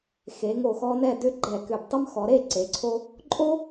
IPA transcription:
xe˩˧ŋo˧˩xɔ˧ nɛ˥˧dʏ˥ ɡ͡ǃɛ˧˩kʏ˧˩btˤʉ˥m xɔ˩˧ɾe˥˧ ǀe˩˧ǀʰo˧ | ǃʼo˥

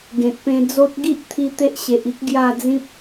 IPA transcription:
ɡẽ˨t̚pẽ˧d͡zo˦t̚ ɡi˦ʔt̪ʰi˧ t̪e˦ʔɕe˨ʔi˦k̚ ɡja˥˧d͡zĩ˦p̚

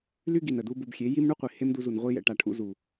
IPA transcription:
ly˦ ɡi˨n ə˨ du˦bu˧bxʲe˨˦ ji˦mɳu˦qʷi˨ he˦mdu˧zu˨n ʁʷi˧jɛ̰˨ ʈa˨ʈʰṵ˧ zu˨

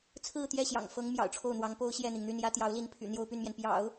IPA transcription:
t͡sʰɹ̩˥˧t̪jɛ˥˩ɕjɑ̰˨˩ŋ fɤ˧˥ŋ mjɑ̰˨˩ʊ̯ʈ͡ʂʰo˥˩ʊ̯n̪wɑ˧˥ŋ po˥ʊ̯ɕjɛ˥˩n̪i˩ŋn̪y˥˩n jä˥ t̪jɑ˧˥ʊ̯li˧˥npʰy̰˨˩ n̪jo˥ʊ̯py˥˩nmjɛ˩n pjɑ̰˨˩˦ʊ̯

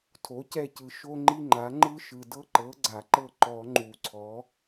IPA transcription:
tʰo˩˥cɛ˦˨cɯ˨˩ ʃo˥ŋ͡ǃi˥ŋ͡ǃa˩˥ ŋ͡ǃɯ˥ʃɯ˨˩dɤ˥ ǃɤ˩˥ɡ͡ǀa˨˩˦ǃɤ˦˨ ǃɔ˨˩˦ ŋ͡ǃu˨˩ǀʰɔ˩˥

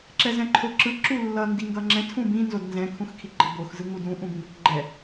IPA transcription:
ǁɛzɛ̃ǃʰoǁɯ ǁulːʌ ndiŋɡʌŋ͡ǁɛ̃ tʰũbĩ nzodnzɛ̃ kʰũxkʰiɡ͡ǃʌbox zɯŋudũ ʔũbĩbʌkɡ͡ǃɛ

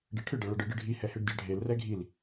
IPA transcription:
ɖɛʈʰɨ ɖɐɭɐɖɨ ɖɨɖʱi hɛheɖdʲaɖʱel rɛɡʱil

